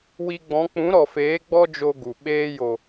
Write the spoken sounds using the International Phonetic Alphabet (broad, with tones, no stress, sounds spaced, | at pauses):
w i˧ ɡ͡b ɔ̃˨˦ k͡p ũ˨˦ ɾ ɔ˨ f eː˨˦ ɡ͡b ɔ˦ d͡ʒ o˧ ɡ u˨ ɓ eː˧ j o˨